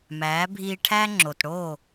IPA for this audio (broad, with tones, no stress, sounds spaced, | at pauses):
m æː˨˦ bʱ iː˧ ʈʰ æ˦ ŋ͡ǁ o˨ t ɽ oː˦˨